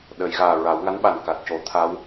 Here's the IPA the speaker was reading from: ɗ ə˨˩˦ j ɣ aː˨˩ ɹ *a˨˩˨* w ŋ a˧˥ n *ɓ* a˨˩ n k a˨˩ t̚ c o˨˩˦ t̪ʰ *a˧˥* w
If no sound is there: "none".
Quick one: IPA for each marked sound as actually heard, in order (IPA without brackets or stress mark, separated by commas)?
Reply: a˨˩˦, ɓ, a˧˥